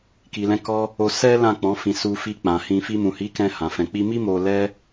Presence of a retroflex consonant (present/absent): absent